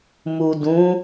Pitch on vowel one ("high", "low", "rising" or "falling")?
low